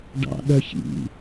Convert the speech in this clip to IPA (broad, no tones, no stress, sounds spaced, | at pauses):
ɖ ɑ̰ ɗ œ ç ḭ